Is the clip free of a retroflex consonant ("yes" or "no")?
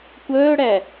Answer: no